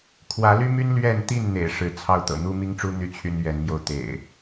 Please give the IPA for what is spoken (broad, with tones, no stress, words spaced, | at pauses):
kʰwä˨˦ly˦my˦n lɥɛ˥˨n t̪i˥˨nn̪ḛ˨˩ɪ̯ ʂɻ̩˨˦ t͡sʰɑ˥˨ʊ̯t̪ɤ̰˨˩ n̪u˦mi˦ŋʈ͡ʂu˦ n̪y˥˨t͡ɕʰy˦n ɥɛ˨˦nmjo˧ʊ̯ t̪ḛ˨˩ɪ̯